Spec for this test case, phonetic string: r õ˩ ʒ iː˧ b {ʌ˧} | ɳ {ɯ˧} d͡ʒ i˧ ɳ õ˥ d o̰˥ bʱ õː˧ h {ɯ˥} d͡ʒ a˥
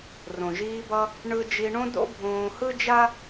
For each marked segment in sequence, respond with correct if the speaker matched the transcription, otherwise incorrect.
correct, correct, correct

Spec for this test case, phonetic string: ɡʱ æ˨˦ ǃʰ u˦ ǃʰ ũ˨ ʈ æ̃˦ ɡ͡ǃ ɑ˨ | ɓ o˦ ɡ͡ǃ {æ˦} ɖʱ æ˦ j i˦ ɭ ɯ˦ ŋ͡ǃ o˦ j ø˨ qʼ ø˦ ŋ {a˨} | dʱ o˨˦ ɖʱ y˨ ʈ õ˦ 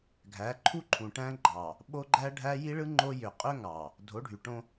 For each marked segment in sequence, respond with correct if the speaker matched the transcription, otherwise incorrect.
correct, incorrect: ɑ˨

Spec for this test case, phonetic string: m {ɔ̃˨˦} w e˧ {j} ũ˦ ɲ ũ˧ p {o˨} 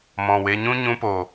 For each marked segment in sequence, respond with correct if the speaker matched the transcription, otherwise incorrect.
incorrect: ɔ̃˨, incorrect: ɲ, correct

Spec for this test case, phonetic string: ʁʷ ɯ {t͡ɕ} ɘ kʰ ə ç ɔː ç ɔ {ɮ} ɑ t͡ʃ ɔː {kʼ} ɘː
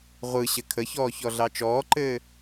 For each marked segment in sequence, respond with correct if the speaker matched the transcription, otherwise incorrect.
incorrect: ɕ, correct, incorrect: ǃ

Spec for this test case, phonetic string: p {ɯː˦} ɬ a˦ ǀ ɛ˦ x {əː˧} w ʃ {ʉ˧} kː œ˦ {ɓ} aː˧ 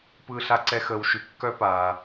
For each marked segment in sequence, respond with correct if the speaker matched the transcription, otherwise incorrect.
correct, correct, correct, incorrect: p

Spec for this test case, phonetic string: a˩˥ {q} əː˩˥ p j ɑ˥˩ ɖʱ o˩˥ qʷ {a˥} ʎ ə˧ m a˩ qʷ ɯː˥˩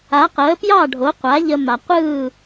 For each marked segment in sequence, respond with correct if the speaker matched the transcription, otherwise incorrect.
correct, incorrect: a˩˥

